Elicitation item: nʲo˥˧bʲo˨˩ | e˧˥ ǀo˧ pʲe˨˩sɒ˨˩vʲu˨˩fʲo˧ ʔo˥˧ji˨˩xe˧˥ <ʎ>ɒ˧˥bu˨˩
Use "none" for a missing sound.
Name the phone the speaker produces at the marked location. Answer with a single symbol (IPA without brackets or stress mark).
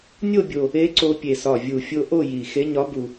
ɲ